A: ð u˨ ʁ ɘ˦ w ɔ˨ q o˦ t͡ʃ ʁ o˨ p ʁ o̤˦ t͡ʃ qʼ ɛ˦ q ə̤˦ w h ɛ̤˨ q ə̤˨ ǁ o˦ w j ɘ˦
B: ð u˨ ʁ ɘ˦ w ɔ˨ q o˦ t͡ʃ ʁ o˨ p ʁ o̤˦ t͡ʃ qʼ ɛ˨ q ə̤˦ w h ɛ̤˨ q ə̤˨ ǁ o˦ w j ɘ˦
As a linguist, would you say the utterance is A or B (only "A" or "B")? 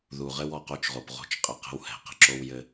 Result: B